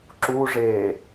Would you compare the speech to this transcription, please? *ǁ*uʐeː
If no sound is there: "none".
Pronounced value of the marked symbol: ǁ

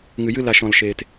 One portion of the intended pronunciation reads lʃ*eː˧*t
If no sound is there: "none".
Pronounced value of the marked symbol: eː˨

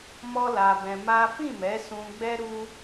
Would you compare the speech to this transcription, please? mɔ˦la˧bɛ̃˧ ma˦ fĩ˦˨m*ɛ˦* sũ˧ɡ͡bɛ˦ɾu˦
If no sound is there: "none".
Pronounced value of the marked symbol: ɛ˨˦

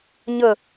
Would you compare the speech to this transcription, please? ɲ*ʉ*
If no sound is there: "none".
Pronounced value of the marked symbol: ə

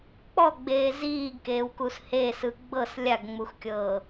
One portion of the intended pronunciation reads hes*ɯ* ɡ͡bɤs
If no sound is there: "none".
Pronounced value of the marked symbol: ɯ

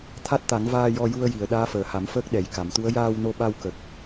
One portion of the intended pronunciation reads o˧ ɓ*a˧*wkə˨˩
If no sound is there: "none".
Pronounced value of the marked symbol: a˧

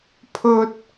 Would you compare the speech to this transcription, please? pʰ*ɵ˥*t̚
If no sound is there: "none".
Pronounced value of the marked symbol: ɵ˥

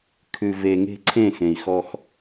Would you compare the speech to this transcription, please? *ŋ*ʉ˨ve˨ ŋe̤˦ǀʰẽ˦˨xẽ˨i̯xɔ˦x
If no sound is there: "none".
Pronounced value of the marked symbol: kʰ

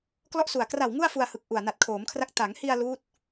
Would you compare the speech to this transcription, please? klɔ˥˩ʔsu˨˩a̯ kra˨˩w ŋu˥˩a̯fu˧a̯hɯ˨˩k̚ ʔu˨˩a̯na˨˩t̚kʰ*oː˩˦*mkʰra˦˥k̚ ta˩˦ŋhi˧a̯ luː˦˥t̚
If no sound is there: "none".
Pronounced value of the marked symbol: oː˩˦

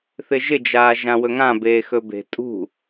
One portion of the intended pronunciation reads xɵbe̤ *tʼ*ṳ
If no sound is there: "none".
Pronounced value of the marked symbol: tʼ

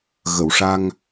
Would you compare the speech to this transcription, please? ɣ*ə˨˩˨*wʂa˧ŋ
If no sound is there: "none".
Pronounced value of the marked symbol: ə˨˩˨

